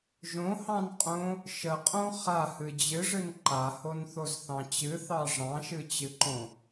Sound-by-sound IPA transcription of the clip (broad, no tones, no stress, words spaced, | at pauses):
ʒõhɑ̃nqʼõ | ʃəqʼõ χahɨ d͡ʑɨʐɨn ǃahonθozθɑ̃ t͡ɕɨθɑ ʐɑ̃ʃɨt͡ɕɨǃõ